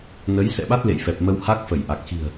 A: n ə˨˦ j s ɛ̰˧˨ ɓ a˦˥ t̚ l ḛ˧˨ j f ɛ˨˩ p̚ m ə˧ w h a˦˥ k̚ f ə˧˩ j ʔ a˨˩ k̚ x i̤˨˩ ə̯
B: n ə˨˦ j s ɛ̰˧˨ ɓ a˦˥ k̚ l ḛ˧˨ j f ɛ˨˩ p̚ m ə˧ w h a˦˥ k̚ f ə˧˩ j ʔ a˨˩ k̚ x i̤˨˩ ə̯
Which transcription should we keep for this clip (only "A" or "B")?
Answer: A